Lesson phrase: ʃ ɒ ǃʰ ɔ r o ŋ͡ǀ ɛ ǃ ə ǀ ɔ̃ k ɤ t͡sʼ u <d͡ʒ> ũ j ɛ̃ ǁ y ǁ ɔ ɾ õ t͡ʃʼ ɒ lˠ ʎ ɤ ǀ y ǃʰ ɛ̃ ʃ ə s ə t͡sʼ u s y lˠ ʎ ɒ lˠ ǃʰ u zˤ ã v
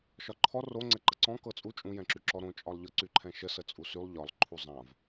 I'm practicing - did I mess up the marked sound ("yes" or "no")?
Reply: yes